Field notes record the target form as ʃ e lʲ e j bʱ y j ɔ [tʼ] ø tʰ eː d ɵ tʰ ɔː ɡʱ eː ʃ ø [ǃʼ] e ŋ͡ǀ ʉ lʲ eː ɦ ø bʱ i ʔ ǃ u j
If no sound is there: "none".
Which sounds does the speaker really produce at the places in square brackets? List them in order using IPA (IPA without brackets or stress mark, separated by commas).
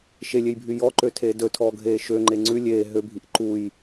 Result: ǃ, ŋ͡ǃ